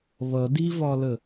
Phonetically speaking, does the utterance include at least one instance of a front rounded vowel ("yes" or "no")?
no